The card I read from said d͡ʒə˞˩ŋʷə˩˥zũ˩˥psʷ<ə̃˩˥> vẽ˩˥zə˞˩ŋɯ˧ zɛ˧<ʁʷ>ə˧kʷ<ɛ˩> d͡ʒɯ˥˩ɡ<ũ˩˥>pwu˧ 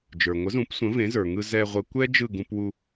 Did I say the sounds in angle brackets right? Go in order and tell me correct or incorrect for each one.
correct, correct, incorrect: ɛ˥, incorrect: ũ˧

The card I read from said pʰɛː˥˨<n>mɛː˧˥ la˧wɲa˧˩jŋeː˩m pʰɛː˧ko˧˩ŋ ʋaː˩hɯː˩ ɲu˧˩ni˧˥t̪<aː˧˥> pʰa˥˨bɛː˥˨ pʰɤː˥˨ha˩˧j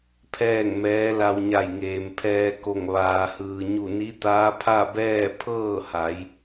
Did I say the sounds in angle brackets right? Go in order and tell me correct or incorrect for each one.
incorrect: ŋ, correct

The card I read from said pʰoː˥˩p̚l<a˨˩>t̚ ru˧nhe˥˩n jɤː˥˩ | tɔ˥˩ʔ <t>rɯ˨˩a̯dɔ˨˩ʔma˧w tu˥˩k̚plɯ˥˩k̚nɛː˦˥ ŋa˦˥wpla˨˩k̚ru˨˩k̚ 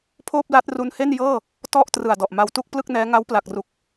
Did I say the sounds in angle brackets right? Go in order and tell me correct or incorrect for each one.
incorrect: a˦˥, correct

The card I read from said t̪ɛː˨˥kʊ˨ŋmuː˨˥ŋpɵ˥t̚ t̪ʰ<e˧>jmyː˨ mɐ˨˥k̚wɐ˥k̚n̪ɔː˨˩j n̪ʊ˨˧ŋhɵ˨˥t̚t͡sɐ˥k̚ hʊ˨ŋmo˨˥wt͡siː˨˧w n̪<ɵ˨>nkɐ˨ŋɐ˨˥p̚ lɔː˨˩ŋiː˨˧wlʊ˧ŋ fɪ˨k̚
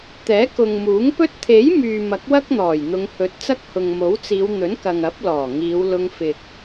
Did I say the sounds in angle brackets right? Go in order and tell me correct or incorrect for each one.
incorrect: e˨˥, incorrect: ɵ˨˥

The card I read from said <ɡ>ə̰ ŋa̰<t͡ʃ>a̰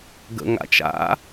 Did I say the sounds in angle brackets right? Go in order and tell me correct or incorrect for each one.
correct, correct

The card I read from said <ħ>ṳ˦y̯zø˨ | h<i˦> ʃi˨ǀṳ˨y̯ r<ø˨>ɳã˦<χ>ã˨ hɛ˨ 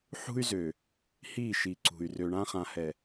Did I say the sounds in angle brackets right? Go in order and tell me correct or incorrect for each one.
correct, incorrect: i˦˨, correct, correct

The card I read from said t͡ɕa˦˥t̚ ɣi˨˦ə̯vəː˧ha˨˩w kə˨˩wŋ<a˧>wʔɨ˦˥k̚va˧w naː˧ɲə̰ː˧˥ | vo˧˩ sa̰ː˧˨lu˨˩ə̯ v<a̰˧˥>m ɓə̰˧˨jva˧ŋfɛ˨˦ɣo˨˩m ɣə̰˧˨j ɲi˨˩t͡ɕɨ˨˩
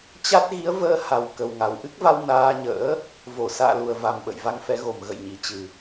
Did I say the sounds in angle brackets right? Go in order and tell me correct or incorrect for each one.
incorrect: a˨˩, incorrect: a˨˩

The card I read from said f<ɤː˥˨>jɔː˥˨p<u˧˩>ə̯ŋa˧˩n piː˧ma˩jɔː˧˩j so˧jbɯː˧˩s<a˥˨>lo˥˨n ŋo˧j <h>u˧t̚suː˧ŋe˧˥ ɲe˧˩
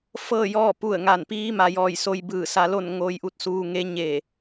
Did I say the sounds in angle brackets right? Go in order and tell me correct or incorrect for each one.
correct, correct, incorrect: a˧, incorrect: ʔ

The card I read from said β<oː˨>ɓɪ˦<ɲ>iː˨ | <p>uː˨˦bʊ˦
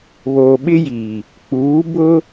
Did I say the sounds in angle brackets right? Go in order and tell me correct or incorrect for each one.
correct, incorrect: j, incorrect: k͡p

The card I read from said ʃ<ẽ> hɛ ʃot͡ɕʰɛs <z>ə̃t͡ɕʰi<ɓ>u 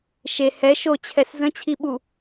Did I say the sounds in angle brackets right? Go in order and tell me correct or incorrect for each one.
incorrect: e, correct, correct

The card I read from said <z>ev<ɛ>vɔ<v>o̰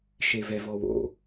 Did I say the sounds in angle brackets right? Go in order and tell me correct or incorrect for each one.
incorrect: ʃ, correct, incorrect: w

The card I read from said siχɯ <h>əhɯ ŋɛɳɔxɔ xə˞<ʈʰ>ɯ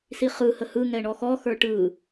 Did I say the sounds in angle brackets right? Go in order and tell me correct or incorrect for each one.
correct, incorrect: ʈ

